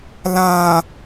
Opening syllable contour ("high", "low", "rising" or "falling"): low